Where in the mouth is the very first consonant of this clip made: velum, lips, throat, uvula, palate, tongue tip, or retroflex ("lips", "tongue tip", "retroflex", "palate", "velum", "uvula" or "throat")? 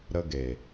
tongue tip